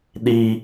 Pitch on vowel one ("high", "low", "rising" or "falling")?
high